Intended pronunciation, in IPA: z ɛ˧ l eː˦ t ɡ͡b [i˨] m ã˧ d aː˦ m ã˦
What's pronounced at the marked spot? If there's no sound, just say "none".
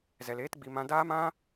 i˧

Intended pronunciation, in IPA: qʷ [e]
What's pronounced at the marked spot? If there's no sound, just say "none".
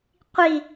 i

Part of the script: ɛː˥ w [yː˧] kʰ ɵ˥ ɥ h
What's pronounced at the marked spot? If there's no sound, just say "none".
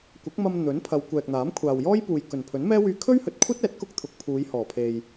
yː˧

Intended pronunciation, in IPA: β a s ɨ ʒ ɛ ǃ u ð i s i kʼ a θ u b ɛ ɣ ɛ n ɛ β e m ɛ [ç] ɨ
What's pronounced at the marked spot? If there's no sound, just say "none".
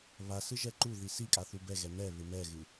ɣ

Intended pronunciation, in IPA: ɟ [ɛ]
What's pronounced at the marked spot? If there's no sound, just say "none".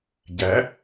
æ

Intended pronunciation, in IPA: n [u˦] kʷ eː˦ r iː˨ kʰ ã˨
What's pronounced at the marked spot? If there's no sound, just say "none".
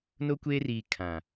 o˦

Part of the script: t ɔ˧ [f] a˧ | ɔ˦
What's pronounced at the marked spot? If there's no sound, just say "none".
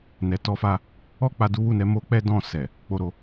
f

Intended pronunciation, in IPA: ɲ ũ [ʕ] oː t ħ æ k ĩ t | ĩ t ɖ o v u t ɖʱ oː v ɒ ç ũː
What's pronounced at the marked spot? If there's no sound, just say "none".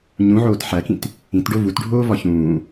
ʕ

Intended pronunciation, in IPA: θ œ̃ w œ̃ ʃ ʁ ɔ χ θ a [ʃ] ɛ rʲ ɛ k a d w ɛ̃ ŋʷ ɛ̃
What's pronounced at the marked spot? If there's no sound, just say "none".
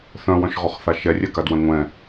ʃ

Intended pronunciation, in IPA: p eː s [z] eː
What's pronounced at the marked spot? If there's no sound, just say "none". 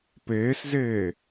z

